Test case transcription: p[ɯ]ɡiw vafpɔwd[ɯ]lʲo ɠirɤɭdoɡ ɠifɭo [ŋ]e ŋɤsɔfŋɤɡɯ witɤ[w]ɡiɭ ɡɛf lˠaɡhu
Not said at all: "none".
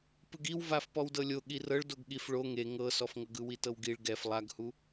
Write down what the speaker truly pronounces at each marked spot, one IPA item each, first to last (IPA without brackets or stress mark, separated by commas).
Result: ɯ, ɤ, ŋ, w